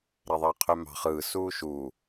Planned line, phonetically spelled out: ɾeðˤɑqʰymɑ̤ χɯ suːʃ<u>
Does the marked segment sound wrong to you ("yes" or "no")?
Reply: no